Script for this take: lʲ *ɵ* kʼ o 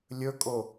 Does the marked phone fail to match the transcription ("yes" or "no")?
no